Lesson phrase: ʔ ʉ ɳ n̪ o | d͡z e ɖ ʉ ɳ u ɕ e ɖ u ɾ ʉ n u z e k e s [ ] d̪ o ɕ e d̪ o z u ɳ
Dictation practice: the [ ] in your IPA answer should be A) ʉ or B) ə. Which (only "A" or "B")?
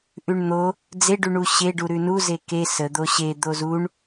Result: B